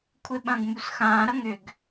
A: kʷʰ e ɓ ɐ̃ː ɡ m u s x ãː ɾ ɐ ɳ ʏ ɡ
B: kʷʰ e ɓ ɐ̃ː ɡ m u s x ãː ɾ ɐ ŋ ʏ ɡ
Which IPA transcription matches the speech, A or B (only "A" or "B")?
B